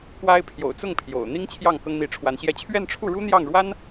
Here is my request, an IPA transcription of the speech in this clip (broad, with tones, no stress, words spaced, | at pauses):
kwa˥ɪ̯ pʰjo̰˨˩ʊ̯t͡sʊ˥˩ŋ pʰjo̰˨˩ʊ̯ n̪i˥ŋ t͡ɕʰjɑ˥˩ŋ kɤ˥ŋn̪i˧˥ʈ͡ʂʰwa˧˥nɕjɛ˥˧ t͡ɕʰɥɛ˥˧nʈ͡ʂʰu˥˩ɻu˥ n̪jɑ˥˩ŋɻwa˥n